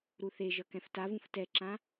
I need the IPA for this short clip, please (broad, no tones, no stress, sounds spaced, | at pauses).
ɾ u θ e ʒ ʌ k ɛ̃ f t a v ũ f t ɛ ǁ ã